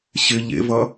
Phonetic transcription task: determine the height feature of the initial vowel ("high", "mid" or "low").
high